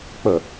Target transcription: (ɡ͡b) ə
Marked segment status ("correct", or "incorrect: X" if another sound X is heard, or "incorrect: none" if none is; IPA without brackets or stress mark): incorrect: k͡p